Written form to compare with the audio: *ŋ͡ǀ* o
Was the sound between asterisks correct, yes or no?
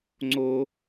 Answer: yes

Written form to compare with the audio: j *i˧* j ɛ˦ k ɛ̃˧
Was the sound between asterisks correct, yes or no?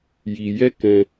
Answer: yes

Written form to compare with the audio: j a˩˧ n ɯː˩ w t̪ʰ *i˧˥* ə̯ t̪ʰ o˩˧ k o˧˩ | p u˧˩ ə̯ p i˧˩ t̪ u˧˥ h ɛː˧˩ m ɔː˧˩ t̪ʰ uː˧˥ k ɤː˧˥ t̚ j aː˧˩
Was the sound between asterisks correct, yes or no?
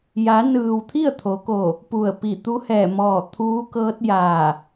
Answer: no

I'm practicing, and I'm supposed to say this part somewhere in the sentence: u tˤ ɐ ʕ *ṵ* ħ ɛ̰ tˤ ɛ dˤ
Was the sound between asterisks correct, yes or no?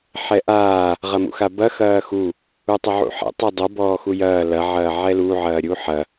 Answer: yes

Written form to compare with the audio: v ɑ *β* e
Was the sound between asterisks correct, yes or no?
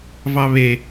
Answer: yes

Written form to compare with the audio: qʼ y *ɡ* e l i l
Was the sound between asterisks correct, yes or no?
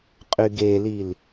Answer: yes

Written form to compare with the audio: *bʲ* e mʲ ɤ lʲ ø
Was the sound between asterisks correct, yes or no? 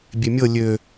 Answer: yes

